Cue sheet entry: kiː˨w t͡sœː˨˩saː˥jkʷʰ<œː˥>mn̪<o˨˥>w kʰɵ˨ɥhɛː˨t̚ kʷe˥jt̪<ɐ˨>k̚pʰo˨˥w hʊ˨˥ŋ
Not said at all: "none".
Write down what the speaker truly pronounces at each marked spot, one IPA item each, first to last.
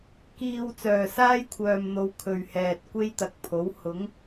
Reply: œː˨, o˨˧, ɐ˨

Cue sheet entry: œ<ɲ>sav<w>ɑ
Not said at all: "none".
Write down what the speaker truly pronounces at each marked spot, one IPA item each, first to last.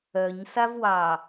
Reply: ɲ, w

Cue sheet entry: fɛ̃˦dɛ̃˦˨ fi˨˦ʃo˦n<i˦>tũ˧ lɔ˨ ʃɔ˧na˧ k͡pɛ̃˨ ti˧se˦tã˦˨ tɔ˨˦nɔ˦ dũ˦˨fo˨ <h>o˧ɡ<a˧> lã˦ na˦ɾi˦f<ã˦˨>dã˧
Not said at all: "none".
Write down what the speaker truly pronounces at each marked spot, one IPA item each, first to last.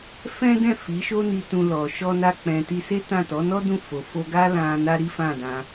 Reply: i˧, f, a˦, ã˦˨

